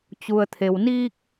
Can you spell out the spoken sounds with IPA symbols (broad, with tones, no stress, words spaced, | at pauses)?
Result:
t͡ɕu˩ə̯t̪ʰe˩wniː˧k̚